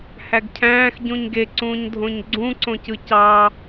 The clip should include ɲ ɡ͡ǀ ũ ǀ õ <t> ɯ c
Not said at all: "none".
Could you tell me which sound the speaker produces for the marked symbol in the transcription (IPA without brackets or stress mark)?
c